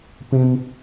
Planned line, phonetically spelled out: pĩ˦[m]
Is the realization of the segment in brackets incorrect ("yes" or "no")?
no